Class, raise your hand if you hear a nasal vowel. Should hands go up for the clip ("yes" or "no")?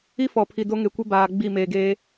no